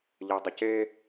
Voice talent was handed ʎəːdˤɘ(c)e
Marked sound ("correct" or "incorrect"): correct